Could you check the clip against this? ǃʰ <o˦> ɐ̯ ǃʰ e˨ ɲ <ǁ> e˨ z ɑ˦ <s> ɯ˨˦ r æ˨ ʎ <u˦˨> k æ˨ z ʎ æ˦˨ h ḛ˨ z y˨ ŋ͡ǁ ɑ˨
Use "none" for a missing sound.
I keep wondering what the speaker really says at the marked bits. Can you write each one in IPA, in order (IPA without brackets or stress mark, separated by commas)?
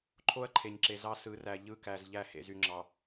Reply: o˦, ǁ, s, ɯ˦˨